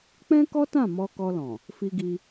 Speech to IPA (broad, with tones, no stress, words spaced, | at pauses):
k͡pɛ̃˦kɔ˦tã˦˨ mɔ˧kɔ˧lɔ̃˨ | fi˧ɡi˧